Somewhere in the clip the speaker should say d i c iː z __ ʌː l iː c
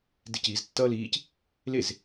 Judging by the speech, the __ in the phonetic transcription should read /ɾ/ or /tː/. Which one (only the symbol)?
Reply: tː